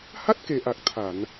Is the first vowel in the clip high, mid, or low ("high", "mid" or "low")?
low